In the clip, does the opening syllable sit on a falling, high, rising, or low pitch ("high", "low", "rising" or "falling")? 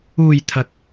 low